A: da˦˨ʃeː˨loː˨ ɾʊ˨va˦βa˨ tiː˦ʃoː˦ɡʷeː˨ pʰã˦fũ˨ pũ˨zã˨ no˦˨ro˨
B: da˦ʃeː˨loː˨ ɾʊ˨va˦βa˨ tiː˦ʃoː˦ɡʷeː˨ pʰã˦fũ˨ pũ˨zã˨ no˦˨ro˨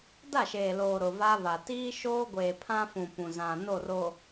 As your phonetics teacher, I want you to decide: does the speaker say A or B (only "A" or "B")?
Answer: A